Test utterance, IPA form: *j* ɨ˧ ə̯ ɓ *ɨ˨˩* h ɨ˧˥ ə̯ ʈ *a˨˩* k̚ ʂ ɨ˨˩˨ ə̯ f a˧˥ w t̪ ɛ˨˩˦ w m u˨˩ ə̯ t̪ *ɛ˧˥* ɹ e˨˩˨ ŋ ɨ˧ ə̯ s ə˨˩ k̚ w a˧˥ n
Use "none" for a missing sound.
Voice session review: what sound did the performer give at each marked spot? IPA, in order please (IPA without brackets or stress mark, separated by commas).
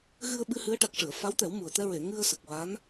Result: ɣ, ɨ˧, a˨˩, ɛ˧